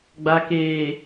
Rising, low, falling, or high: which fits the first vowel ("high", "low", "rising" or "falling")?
low